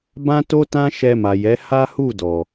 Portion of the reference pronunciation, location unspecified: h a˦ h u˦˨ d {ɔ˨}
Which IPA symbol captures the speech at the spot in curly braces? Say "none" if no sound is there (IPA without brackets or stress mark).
ɔ˨